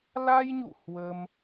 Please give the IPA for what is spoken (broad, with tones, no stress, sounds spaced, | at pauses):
l a˧ j ɲ ṵ˧˨ h w ə˧ m